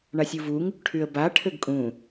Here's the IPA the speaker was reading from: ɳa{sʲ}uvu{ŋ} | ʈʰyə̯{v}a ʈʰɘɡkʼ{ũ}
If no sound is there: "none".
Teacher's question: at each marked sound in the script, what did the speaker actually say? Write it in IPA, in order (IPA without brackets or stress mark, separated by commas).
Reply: sʲ, ŋ, b, ũ